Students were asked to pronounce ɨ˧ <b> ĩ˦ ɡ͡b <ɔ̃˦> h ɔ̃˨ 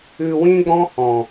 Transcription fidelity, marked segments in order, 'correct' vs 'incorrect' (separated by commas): incorrect, correct